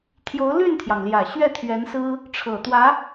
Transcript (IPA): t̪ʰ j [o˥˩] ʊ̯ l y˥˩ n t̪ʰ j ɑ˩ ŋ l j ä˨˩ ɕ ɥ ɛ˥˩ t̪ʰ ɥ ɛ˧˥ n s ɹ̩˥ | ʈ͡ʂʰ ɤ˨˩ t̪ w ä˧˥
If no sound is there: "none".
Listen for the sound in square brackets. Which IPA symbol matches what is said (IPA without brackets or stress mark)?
o˧˥